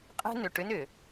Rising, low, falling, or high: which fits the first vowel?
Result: high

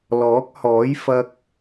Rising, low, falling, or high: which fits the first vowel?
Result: rising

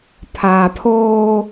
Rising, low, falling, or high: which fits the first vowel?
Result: low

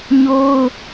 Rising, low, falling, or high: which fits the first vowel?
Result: high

